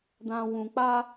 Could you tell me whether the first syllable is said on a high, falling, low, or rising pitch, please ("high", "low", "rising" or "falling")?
low